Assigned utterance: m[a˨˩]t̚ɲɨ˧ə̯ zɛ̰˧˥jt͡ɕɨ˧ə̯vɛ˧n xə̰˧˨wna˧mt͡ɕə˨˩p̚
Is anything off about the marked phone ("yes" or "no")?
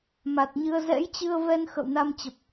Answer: no